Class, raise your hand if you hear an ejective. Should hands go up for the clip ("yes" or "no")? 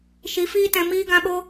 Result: no